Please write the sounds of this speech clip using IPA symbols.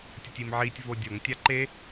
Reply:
tʲ ʌ tʲ i m ʕ i tʲ v o dʲ o ŋ tʲ a ǃ e

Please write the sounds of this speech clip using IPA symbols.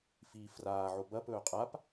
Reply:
f iː f r aː ʕ o b ɐ p ɵː qʼ a p

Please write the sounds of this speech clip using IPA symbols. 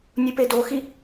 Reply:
nʲ u p e d o x i

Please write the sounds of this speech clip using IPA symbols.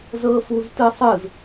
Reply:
z ɤ f u z t ɯ sˤ ɯ z

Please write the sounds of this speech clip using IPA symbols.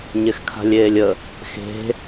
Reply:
ɲ e x kʰ a̤ lʲ eː lʲ ə | x e̤

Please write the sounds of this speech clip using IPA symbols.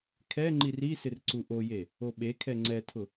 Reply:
kʰ ɛ ŋ͡ǃ i r i s ɪ r ǀ u ʔ o j e | o ɓ e kʰ ɛ ŋ͡ǀ ɛ tʰ ʊ

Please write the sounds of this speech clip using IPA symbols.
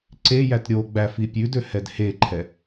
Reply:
ǀ e j æ t ɾʲ o ɡ͡b æ f i pʲ ʉ d ø h ɛ d h e ǃʰ ɛ

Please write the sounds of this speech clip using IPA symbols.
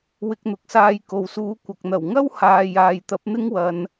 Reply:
w ɪ˧ k̚ n̪ ʊ˧ k̚ s aː˧ j k o˨ w s uː˨˥ kʷ ɐ˨ k̚ n̪ ɐ˨˩ w ŋ ɐ˥ w h aː˨ j aː˨ j t̪ ɐ˨˥ p̚ n̪ ɪ˥ ŋ w ɐ˨˧ n

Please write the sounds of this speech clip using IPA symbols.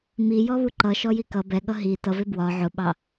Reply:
m i j ɔ β u ǃ ʌ ʃ ɔ j i k ʌ b ɛ ɠ ʌ ɦ i t ʌ v ɪ b w ɒ ʕ ʊ ɓ ɑ

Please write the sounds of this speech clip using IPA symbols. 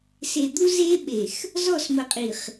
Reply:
s e˨ d̪ u˦ z e˦ ɓ e˨ x | z ɔ˦˨ s m ə˨ qʼ i˨ χ

